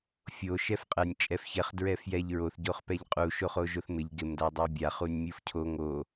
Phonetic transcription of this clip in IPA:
fʲ o ʃ ɛ f qʼ ɛ nʲ t͡ʃʼ ɛ f ç ɛ χ d ɹ ɛ f j ɛ ʎ ɹ o θ ɟ o χ p ɛ ʎ qʼ u ʃ o χ o ʒ o θ m ɪ ʎ ɡ ɪ m d a dˤ a bʲ a χ u nʲ mʲ u f cʰ o ŋ o

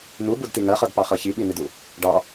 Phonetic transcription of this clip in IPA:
n u b u d t i ŋ ɜ χ ɤ d p ɑ χ ɤ ç i ɓ i n i d u | ɖ ɑ

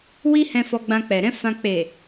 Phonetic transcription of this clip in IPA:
w i˦ h ɛ̃˧ f ɔ˧ ɡ͡b ã˧ k͡p ɛ˨ ɾ ɛ̃˨˦ f ã˧ k͡p e˨

